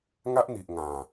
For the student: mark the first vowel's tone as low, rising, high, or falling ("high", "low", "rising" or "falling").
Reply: high